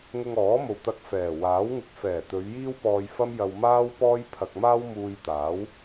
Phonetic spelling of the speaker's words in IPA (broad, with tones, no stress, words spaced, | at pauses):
ŋʊ˧ŋɔː˨˥mo˨wt̪ɐ˧k̚ fɛː˨˩waː˨˥wŋɪ˧k̚ fɛː˨˩t̪ɵ˨˧ɥ jiː˥wpɔː˧jfɐ˥mjɐ˧w maː˥wpɔː˥jpʰɐ˧k̚ maː˥wmuː˧jt̪aː˨˥w